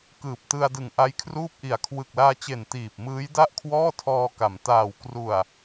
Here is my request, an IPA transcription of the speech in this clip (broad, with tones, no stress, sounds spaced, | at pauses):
k ɯː˨˩ p̚ t ɯ˧ a̯ d ɯ˨˩ ŋ ʔ a˦˥ j kʰ r uː˥˩ p̚ ʔ i˨˩ a̯ kʰ w ɯ˨˩ k̚ l aː˧ t͡ɕ e˨˩ n t iː˨˩ p̚ m ɯː˦˥ j d a˥˩ ʔ kʰ w ɔː˥˩ tʰ ɔː˧ k a˩˦ m t aː˨˩ w k r u˨˩ a̯